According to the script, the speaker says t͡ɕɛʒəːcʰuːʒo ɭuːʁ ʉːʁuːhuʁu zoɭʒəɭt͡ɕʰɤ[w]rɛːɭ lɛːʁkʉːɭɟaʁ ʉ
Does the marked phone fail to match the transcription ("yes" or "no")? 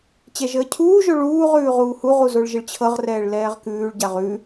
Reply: yes